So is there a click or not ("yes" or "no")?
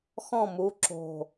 yes